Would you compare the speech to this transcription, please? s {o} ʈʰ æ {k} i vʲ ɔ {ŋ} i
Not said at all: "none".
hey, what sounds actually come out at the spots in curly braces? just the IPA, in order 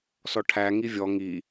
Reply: ɔ, ŋ, ŋ

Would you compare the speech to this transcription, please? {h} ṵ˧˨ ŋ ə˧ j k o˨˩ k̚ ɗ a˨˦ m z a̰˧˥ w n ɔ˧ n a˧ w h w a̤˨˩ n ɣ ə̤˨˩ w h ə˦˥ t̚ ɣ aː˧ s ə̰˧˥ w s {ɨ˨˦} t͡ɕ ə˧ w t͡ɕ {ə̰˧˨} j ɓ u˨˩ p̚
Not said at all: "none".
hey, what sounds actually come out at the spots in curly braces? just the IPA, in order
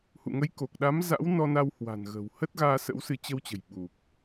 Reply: h, ɨ˨˦, ə̤˨˩

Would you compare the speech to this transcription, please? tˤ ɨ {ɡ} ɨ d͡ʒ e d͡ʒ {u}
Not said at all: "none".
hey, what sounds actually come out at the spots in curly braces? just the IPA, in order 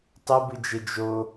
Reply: b, o

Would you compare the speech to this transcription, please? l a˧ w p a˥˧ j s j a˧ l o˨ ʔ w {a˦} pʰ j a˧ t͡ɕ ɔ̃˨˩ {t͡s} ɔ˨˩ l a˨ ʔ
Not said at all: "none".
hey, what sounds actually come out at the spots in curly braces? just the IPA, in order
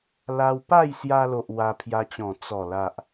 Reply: a˧, t͡s

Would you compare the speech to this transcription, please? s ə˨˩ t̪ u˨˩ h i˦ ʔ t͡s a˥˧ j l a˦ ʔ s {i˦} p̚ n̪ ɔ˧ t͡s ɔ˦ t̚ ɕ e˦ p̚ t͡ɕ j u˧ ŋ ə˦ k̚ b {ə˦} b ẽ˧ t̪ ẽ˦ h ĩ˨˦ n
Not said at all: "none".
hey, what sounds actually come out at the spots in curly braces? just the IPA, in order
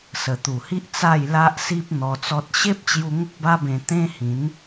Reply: i˦, a˦

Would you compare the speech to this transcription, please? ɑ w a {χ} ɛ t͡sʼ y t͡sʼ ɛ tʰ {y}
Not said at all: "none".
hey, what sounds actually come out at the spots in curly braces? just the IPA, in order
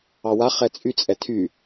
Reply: χ, y

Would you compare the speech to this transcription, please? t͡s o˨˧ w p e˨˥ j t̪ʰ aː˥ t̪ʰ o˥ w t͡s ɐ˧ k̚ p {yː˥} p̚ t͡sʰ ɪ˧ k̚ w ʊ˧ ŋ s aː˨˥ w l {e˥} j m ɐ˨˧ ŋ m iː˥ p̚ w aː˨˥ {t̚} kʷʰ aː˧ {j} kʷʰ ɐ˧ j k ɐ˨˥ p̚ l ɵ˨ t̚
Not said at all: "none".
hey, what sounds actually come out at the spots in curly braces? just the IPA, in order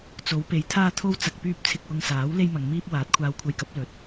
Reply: yː˥, e˥, t̚, w

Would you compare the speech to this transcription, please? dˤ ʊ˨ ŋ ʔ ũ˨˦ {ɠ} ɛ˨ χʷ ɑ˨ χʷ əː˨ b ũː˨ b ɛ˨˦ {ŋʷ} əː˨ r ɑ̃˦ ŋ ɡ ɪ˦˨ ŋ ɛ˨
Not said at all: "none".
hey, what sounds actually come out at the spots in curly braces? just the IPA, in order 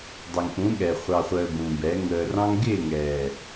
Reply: ɠ, ŋ

